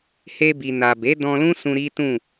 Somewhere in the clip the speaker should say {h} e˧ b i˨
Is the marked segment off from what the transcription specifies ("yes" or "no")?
no